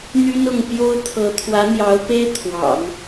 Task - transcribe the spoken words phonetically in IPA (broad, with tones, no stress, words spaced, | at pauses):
n̪y˥n ʊ˥˩ŋ pjo˥ʊ̯t̪ʰɤ˧˥ t̪ʰwä˧˥n̪jɑ˧˥ʊ̯pe˥ɪ̯ t̪ʰwɑ̰˨˩˦ŋ